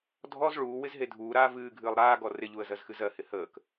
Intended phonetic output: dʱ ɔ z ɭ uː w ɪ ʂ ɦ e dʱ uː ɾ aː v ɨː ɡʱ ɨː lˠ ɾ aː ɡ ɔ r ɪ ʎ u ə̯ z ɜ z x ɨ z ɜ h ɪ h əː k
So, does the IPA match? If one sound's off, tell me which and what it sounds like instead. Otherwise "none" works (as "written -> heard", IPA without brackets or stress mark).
ʂ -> z